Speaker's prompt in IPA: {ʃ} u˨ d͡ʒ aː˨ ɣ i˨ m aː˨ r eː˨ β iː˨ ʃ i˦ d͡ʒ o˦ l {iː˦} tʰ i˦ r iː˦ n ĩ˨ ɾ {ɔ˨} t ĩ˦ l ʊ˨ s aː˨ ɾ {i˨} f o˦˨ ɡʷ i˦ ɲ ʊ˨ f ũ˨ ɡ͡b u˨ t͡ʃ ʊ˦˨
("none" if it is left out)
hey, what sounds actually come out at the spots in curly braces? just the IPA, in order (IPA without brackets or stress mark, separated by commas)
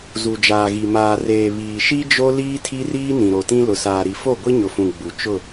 z, iː˦, o˨, i˨